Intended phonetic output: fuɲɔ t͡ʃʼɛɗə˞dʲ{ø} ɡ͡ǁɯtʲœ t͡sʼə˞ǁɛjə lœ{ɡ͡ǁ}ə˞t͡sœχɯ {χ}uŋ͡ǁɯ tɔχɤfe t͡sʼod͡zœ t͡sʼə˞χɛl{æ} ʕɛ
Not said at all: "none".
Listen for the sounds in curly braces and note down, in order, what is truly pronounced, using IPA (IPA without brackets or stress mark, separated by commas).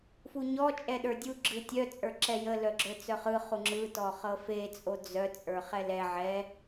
u, ɡ͡ǁ, χ, ɛ